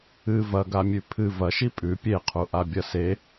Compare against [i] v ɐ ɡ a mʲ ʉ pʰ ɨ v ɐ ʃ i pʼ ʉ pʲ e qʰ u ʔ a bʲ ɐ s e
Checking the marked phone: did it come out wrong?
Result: yes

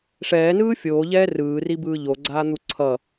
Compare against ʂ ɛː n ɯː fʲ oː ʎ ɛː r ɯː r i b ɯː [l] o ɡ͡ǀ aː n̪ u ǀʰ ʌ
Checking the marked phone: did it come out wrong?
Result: yes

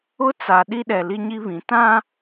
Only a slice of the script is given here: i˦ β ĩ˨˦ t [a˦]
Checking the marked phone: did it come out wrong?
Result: yes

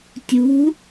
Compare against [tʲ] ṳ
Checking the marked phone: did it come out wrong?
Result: no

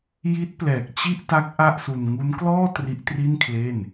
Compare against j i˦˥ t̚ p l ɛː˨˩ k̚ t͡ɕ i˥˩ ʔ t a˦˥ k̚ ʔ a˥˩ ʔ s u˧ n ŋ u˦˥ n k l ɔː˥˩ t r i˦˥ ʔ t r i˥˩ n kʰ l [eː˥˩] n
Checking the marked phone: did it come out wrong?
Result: no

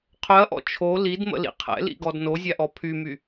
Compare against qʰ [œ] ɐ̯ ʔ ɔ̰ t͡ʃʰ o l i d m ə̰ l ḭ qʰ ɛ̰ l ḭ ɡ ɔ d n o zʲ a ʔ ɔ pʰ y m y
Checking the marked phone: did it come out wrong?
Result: no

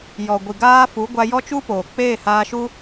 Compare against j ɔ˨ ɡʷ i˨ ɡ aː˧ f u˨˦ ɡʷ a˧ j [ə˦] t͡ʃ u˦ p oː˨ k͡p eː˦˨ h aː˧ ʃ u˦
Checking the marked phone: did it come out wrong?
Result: yes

